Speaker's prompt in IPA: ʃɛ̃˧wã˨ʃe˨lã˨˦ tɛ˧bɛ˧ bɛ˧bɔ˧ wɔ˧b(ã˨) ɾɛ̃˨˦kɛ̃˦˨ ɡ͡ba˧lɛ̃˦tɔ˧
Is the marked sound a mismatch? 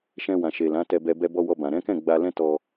no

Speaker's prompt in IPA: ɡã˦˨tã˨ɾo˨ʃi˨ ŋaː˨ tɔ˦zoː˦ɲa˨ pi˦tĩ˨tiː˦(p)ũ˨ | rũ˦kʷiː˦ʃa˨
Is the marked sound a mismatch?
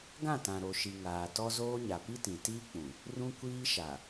yes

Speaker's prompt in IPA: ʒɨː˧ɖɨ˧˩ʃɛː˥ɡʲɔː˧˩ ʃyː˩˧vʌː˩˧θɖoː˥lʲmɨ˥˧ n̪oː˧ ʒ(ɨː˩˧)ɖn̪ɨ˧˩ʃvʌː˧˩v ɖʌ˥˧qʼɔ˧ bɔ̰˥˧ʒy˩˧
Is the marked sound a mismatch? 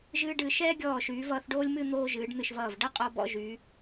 no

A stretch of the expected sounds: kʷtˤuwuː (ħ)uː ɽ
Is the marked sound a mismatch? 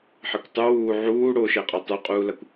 yes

